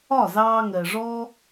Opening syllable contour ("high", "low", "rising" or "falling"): falling